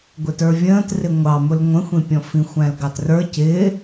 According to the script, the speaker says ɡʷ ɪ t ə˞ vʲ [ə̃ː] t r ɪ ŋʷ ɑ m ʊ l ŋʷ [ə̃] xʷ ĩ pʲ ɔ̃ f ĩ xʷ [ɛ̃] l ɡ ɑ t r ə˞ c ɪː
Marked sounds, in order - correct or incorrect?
correct, correct, incorrect: æ̃

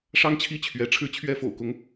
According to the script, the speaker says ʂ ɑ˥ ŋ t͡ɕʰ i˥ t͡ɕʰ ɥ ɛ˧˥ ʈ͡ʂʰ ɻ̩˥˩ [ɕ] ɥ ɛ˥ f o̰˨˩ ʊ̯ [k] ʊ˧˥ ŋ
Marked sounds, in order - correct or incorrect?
incorrect: t͡ɕʰ, correct

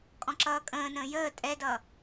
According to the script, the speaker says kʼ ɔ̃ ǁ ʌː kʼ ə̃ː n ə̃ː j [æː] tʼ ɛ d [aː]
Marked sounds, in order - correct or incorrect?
incorrect: əː, incorrect: ʌː

